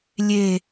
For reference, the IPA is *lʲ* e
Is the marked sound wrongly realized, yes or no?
no